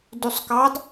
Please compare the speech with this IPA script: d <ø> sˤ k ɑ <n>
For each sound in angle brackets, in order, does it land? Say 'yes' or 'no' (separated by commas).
no, no